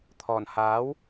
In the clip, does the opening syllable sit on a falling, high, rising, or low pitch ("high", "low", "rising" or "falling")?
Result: low